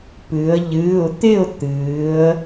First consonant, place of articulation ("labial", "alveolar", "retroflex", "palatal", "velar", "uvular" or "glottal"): labial